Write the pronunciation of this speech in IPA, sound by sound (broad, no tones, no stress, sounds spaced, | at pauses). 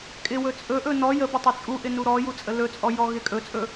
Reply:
kʼ ɪ w ɵ t͡sʼ ɵ ʔ ɵ n ɔ j ə b ə tˤ ɵ t͡sʼ u ʔ ɪ n u ɾ ɔ j u t͡sʼ ə l ɵ t͡sʼ ɔ j ɔ ɣ ɪ kʼ ɵ t͡sʼ ɵ